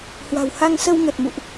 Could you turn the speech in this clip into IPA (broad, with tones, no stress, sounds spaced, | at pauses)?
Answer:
h w a̤˨˩ w h a˧ ŋ s ə˧ w ŋ ə˨˩ t̚ m ṵ˧˨ ʔ